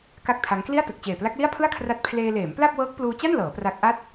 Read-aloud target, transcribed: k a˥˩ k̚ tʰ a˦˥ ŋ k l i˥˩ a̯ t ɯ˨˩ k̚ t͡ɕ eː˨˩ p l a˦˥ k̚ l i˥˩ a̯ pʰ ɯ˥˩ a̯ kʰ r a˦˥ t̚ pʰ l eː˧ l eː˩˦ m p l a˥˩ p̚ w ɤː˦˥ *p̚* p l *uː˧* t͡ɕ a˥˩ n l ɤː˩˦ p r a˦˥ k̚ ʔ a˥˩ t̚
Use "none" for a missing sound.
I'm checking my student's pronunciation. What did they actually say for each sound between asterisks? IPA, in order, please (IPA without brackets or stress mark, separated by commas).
k̚, uː˧